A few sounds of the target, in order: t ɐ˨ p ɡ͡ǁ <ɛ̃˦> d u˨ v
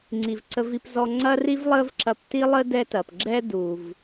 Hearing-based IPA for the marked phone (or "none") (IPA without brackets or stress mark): ɛ˦